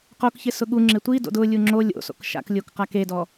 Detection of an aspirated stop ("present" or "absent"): absent